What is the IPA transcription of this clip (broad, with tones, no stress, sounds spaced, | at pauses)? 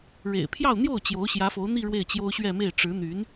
ɻ ḛ˨˩ ɪ̯ pʰ j ɑ˥˧ ʊ̯ n̪ j o˥˩ ʊ̯ t͡ɕ j o˧˥ ʊ̯ ɕ j ä˧˥ f o˧˥ ʊ̯ n̪ i˥˧ ɻ w e˥˩ ɪ̯ t͡ɕ j o˥ ʊ̯ ɕ ɥ ɛ˥˧ m e˥˩ ɪ̯ ʈ͡ʂ ɻ̩˧˥ n̪ y˧˥ n